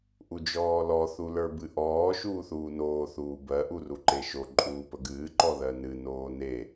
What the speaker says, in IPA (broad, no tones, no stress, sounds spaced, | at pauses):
ʔ u d͡ʒ ɔː l ɔ θ u l ə˞ b ɨ ʔ ɔː ʃ uː θ uː n oː θ uː b ɜ ʔ u r u ǃ e ʃ o ǃʼ uː p ə ɡ ɨː ǃ ɔ ð ɜ n ɨ n oː n e